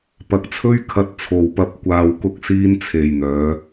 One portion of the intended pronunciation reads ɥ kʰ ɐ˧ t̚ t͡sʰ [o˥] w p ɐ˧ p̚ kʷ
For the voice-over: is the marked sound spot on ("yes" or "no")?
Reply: no